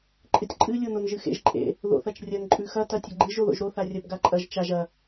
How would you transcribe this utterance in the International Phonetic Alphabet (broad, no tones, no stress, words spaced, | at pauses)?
ǃʼɨtʲǃʼɨ lʲononʒɨxḛʒ ǃʼḛ | ðo̰θɐt͡ʃrʲɐn ǃʼʉxɐ tɐtʲɐɡ͡ǃɨʒ oðo̰ʒɾo θarʲɐb ɡaǃʼɐʒ t͡ʃaʒ ɐ